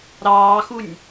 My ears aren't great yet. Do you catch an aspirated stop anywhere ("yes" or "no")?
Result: no